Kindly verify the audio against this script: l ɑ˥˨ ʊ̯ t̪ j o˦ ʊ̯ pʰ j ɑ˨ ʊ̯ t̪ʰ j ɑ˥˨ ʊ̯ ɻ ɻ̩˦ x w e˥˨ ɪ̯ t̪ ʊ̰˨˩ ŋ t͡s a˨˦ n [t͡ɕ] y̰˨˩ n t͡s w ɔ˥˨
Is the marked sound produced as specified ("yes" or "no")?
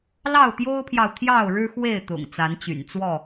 yes